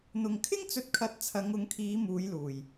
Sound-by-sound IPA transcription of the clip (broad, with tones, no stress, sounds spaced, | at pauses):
n̪ ʊ˨ ŋ kʰ ɪ˥ ŋ t͡s ɵ˧ t̚ kʰ ɐ˨˥ t̚ t͡sʰ ɐ˨˧ ŋ ʊ˨˧ ŋ kʰ iː˨˧ m uː˨˧ j l uː˨˩ j